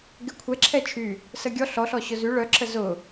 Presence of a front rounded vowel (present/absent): present